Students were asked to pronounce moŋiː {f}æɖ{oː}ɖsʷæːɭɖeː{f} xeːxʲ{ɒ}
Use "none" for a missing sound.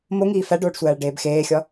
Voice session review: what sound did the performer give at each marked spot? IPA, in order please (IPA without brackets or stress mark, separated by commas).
f, oː, b, ɒ